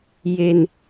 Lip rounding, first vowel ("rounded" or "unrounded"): unrounded